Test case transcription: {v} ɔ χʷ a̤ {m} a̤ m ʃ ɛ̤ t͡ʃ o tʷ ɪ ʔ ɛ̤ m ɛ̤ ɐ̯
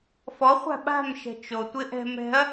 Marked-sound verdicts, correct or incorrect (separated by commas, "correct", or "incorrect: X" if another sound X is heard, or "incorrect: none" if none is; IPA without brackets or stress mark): incorrect: f, incorrect: ɓ